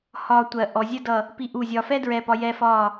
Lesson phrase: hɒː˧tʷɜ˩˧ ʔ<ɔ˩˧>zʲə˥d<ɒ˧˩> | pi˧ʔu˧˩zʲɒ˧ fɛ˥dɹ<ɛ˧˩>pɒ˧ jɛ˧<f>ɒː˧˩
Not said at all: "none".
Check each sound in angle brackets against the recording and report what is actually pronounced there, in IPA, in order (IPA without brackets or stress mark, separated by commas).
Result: ɔ˩˧, ʌ˧˩, ɛ˧˩, f